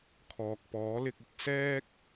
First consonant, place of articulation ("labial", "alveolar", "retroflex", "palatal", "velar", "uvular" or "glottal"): velar